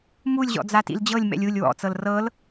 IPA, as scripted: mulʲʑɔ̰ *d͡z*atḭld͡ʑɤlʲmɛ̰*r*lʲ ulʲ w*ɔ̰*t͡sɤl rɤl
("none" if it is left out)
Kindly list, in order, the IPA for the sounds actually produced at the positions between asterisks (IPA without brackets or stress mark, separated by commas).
d͡z, none, ɔ̰